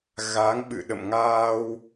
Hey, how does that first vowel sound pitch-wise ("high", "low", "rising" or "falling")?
rising